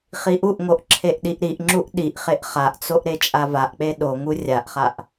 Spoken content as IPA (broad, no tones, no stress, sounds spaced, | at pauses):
χ i ʔ u ʔ ŋ o ʔ ǁʰ e ʔ ɗ i ʔ ɾ i ʔ ŋ͡ǁ u ʔ ɗ i ʔ χ e ʔ χ a ʔ t͡s o ʔ ɾ e t͡ʃʼ a v a ʔ k͡p e ɗ o ŋ u rʲ a ʔ χ a ʔ